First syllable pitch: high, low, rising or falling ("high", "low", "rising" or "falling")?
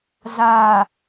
low